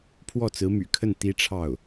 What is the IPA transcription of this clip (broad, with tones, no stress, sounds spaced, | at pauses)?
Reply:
pʰ w ɔ˥˩ t͡s ɹ̩˧˥ m y̰˨˩ kʰ ə˥˩ n t̪ i˥ ʈ͡ʂʰ ɑ˥˩ ʊ̯